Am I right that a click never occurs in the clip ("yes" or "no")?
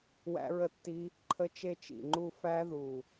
no